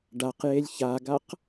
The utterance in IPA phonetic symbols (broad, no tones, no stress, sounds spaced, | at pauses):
ɖ a q j e lʲ ç a ɡ a q